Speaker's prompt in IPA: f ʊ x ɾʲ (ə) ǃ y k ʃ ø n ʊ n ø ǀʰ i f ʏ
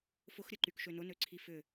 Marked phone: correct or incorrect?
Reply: correct